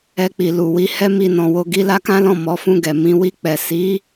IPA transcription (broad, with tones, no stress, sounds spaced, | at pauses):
ɛ˧ k͡p i˨ l u˨ w i˨˦ h ɛ˦ m i˦˨ n ɔ̃˧ w o˧ ɡ i˦ l a˦ k ã˦ l ɔ̃˦˨ m ɔ˨˦ f ũ˦˨ ɡ ɛ˨ m ĩ˨˦ w i˧ k͡p ɛ˨ s i˨˦